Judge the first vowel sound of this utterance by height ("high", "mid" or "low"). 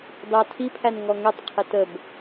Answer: low